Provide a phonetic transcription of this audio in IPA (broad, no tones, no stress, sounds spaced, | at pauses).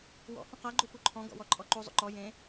w ɔ̰ h ũ q a ɡ͡ǃ u p u ǃʰ ɔ̃ ɡ ɔ̰ w ɔ ǃʼ ɔ ǃ u zˤ ṵ ǃ ɔ j ẽ